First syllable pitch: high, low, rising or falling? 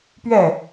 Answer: falling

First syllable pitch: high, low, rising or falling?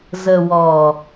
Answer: low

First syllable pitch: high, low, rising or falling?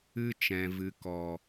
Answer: high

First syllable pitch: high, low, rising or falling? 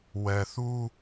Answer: low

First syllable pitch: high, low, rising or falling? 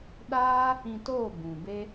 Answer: high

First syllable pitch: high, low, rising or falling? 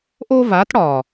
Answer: high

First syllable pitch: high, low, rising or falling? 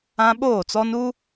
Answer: high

